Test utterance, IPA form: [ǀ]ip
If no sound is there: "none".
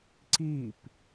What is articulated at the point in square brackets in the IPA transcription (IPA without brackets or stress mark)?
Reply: ǀ